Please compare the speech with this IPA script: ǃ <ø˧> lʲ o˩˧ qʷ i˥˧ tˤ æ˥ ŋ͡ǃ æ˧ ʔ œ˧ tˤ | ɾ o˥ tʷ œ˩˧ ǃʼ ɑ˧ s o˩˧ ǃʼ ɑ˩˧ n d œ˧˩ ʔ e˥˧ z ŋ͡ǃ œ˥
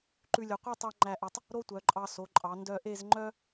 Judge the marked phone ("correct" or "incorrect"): incorrect